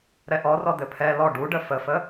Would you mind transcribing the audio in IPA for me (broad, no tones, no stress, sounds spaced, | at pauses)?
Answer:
ɾ ɛ ʔ ɔ r ɔ d̪ ɘ pʰ ɛ l ɔ ɖ u ɖ ə f ə f ə